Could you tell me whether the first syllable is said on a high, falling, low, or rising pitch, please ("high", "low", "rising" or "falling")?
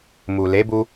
low